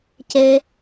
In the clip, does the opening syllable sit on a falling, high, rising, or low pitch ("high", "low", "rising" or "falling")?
high